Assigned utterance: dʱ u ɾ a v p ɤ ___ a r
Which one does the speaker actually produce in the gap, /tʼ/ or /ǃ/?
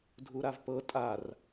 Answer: tʼ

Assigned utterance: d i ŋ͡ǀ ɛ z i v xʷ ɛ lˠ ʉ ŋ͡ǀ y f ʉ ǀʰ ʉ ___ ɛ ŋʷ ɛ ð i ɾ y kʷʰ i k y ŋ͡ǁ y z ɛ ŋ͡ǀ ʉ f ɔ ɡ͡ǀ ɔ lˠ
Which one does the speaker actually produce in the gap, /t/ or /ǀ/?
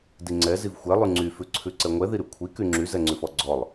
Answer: ǀ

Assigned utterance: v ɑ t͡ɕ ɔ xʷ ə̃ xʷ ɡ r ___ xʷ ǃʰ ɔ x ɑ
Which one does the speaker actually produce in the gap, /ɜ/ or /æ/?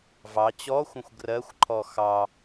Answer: ɜ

